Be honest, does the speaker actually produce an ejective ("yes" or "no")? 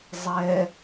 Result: no